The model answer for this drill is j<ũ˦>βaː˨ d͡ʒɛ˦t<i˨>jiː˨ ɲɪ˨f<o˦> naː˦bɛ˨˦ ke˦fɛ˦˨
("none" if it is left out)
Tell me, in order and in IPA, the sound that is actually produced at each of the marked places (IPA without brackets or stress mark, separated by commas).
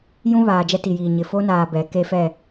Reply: ũ˦, i˨, o˦